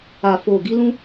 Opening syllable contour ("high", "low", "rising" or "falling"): low